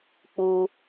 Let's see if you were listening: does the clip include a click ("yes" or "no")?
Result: no